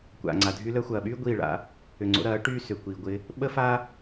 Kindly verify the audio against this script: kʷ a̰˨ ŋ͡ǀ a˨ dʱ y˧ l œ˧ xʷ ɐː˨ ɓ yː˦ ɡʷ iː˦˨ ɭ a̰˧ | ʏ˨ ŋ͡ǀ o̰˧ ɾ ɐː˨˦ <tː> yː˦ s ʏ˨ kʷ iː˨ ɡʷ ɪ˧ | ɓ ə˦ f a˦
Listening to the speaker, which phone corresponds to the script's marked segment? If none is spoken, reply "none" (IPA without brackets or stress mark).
ʈ